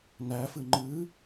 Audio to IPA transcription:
n æ f ɨ ŋ͡ǃ ɨ

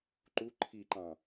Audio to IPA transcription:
ǃ u ǃʰ i ǃ ɑ̃

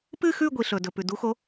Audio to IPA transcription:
p ɨ˥˧ x ʉ˥˧ ɡʷ i˨ ɬ ɵ˨ d ɵ˨ p ʉ˨ d u˧˥ x o˧˥

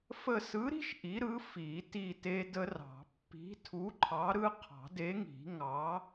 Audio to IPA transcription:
f ə˦˨ s ɯ˨˥ ɾ i̤˦ ʃ ʔ i˨˥ ɾ ɯ˨˥ f i˨˩˦ t i˦˨ t e˦ d ə˦ r ɑ̤˨˩˦ pː i̤˨˥ tʰ u˨˥ ǃʰ ɑ˨˥ ɾ ɯ˦ qʰ ɑ̤˨˩˦ d e˨˥ ŋ i̤˨˩˦ ŋ ɑ˨˥

